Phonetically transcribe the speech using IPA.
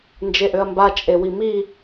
n d͡ʒ e ʔ ø ɐ̯ m b a t͡ʃʼ e w i m i

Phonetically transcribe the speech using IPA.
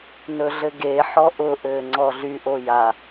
n ɵ ɮ ɘ ɡ e ħ ɔ ʔ ʊ ʔ ɘː ŋ͡ǀ ɔ ɮ y ʔ o j a

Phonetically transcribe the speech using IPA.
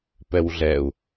p ɛ w ɮ ɛ u̯

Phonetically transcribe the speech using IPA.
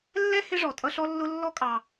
lː ɛ˥ h ɪ˥ ʐ ɔ˩ tʼ ʌ˦ ɬ ɔ˥ lː ʊ˥ lː ɔ˦ kʼ ɑ˩

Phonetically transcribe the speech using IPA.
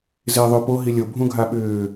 z ɪː ðˤ ʏ p o ɦ i lʲ o bʱ ũ ɡʱ a ɓ ʏː

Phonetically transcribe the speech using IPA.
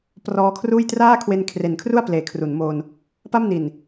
p r ɔː˧ kʰ r uː˥˩ j t r aː˥˩ kʰ w e˧ n kʰ r e˨˩ n kʰ r u˥˩ a̯ p l eː˩˦ kʰ r u˩˦ n m oː˧ n | p a˥˩ m n i˨˩ n

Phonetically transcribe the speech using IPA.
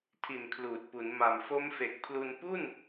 tʰ i˨˩ n kʰ l uː˨˩ t̚ p u˩˦ n m a˨˩ m f o˦˥ m f e˨˩ k̚ pʰ l u˧ n p u˥˩ n

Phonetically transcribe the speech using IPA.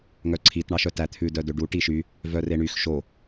ŋ œ ǀʰ i t ɳ ɑ ʃ œ t æ t̪ʰ ʉ d œ d ø ɖ u ʈ i ʃ y | v œ r e ɳ y x ʃ o

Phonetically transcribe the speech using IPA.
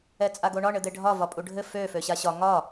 ɛ t͡sʼ a ɡ o ɳ ɒ ɳ ɘ d̪ e ɖʱ ɒ v ɒ pʼ u ɖʱ ɘ f ø f ø ɕ a ɕ ɒ ŋ ɒ

